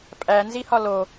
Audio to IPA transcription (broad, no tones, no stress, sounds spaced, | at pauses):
pʼ æ n z i h ɒ l o